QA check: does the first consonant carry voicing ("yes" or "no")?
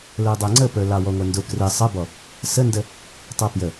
yes